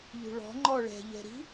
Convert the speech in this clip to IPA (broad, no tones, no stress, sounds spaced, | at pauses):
ʎ ṳ ɭ ɔ̤ ŋ͡ǃ ɔ ɭ ɛ̤ ʎ ɛ̤ ɾ i̤